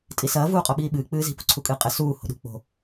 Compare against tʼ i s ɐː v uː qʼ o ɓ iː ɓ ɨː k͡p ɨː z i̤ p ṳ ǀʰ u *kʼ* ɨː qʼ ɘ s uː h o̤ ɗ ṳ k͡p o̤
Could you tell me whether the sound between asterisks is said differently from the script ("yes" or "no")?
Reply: no